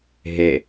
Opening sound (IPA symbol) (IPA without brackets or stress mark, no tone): ɦ